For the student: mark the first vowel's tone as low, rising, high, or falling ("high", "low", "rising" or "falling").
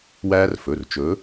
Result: high